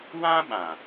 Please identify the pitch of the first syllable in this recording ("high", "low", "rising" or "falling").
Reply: high